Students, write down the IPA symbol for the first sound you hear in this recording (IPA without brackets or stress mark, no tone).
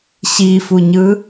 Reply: ɕ